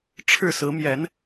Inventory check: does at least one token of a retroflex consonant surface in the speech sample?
yes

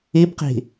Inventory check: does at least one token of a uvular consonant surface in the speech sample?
yes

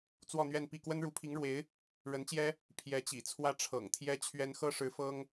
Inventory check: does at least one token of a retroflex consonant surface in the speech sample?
yes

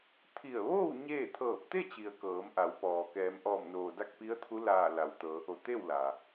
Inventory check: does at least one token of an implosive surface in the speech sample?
no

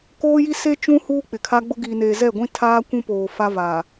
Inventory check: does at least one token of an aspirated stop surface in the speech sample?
yes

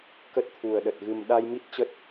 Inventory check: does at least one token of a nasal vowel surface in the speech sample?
no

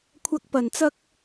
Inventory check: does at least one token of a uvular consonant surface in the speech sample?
no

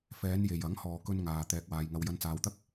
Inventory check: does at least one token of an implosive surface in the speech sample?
no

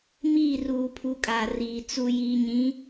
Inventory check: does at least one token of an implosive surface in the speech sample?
no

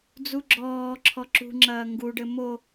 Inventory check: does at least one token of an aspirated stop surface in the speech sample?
yes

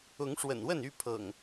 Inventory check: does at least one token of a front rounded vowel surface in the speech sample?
yes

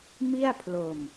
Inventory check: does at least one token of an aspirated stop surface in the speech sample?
yes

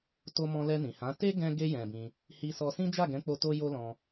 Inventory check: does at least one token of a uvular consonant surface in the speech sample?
no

